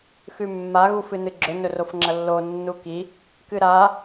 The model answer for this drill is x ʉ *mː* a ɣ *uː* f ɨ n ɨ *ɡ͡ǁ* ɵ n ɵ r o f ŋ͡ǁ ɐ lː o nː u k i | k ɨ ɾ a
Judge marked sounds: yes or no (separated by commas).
yes, no, yes